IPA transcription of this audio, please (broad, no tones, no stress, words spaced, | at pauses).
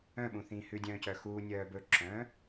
œ̃ɓũ θĩːhʉdʲœ̃ː cœxuːnʲœː bɵǁœ̃ː